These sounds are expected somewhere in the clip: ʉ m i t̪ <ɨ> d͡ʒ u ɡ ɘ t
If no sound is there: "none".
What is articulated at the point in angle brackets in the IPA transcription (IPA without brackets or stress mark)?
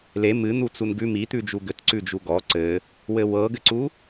ʉ